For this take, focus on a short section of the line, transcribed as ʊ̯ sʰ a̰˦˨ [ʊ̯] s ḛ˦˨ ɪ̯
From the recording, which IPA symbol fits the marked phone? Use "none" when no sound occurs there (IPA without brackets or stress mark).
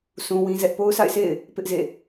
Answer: ɪ̯